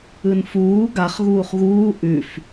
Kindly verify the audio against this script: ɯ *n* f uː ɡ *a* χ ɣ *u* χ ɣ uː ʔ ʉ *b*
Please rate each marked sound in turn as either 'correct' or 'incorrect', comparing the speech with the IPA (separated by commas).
correct, correct, incorrect, incorrect